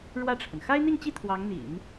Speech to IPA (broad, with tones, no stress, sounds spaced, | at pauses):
ɻ w ä˥˩ ʈ͡ʂʰ ə˩ n x a˥ ɪ̯ n̪ i˥˧ ŋ t͡ɕ i˥˩ t̪ʰ w ɑ˧˥ ŋ n̪ ḭ˨˩˦ n